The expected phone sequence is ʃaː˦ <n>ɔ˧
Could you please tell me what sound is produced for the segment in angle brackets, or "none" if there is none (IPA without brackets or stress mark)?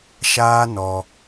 n